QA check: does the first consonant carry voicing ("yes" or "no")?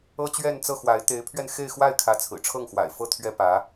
no